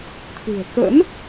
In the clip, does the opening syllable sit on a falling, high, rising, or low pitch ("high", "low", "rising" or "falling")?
low